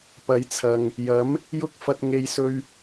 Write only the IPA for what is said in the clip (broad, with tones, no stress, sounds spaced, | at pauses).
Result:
p ɐ˨˧ j t͡sʰ ɐ˨ ŋ | j ɐ˨˥ m | j ʊ˥ k̚ f ɐ˧ t̚ ŋ e˨ j s ɵ˧ ɥ